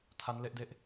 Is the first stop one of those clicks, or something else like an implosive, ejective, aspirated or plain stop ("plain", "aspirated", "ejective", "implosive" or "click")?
aspirated